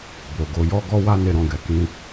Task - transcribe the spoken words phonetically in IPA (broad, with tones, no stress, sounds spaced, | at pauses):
b o˨ ɡ o˨˦ j ɔ˦ ɡ ɔ˦ w a˦ n e˦ ɾ ɔ̃˦˨ ɡ ɛ˨˦ k ĩ˦